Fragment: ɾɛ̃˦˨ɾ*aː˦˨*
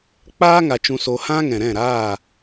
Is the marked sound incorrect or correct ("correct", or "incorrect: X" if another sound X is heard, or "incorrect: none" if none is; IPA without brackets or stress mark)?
correct